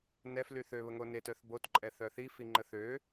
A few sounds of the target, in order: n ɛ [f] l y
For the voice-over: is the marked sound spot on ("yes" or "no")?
yes